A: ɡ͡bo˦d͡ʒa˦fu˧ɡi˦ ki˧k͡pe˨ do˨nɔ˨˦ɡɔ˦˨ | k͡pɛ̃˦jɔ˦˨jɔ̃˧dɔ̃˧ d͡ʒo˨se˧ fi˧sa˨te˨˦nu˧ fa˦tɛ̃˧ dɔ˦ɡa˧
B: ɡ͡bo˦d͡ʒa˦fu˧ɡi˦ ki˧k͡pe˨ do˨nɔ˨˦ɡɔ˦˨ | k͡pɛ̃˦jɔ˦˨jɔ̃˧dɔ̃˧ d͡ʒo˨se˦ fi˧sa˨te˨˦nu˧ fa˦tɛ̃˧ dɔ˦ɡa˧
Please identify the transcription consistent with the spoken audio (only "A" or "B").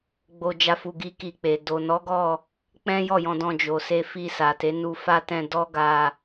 A